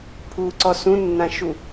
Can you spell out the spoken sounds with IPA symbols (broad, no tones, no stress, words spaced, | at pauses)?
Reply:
pʰuǀɔ sũnːãʃu